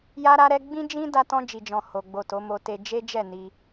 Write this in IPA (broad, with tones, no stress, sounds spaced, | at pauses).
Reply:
j a˦ ɾ a˦ ɾ ɛ˦ ɡ͡b ĩ˧ d͡ʒ ĩ˧ d a˧ t ɔ̃˧ d͡ʒ i˨ d͡ʒ ɔ̃˨ h o˨ ɡ͡b o˨ t o˨˦ m o˧ t e˧ d͡ʒ e˦ d͡ʒ ɛ˦˨ n i˧